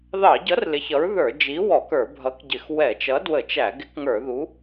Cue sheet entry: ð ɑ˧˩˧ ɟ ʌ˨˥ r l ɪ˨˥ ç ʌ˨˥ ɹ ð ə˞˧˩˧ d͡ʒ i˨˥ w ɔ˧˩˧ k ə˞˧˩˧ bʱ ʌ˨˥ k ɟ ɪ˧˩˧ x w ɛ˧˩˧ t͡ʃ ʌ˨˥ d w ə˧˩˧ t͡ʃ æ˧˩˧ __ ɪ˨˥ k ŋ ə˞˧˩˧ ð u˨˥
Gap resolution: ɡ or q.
ɡ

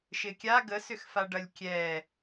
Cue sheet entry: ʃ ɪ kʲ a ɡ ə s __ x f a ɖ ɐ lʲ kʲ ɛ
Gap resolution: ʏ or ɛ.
ʏ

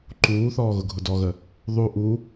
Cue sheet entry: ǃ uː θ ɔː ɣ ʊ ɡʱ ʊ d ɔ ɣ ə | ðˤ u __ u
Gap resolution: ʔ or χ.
ʔ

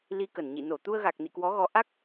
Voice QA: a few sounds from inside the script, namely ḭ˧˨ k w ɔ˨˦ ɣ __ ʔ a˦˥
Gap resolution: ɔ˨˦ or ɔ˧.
ɔ˨˦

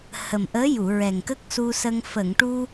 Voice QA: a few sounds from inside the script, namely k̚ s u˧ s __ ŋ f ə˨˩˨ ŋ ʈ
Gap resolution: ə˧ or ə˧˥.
ə˧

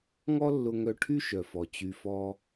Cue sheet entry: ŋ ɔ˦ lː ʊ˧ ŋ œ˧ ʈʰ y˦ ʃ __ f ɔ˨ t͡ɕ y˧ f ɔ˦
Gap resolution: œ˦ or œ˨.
œ˨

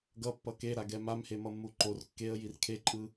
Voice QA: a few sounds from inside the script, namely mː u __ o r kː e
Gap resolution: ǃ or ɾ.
ǃ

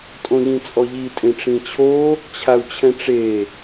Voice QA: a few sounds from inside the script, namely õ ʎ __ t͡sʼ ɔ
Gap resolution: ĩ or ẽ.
ĩ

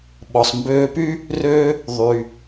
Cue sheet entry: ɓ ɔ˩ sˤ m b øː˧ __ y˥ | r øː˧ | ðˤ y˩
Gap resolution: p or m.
p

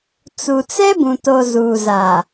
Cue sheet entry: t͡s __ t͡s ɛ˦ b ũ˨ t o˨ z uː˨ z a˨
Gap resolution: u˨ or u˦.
u˨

